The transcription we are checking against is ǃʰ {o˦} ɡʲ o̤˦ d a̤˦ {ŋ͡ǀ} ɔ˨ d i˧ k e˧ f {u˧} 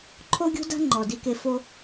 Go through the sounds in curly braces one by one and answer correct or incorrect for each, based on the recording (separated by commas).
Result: correct, incorrect, incorrect